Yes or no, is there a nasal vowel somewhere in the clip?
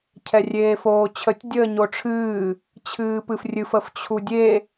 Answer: no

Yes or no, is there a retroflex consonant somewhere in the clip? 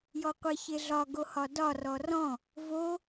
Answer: no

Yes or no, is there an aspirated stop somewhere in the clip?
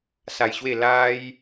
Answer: no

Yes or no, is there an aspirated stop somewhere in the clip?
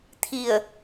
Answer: yes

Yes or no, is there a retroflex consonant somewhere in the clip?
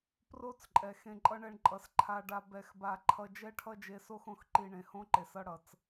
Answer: yes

